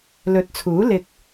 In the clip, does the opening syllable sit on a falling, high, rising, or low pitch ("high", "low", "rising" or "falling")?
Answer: rising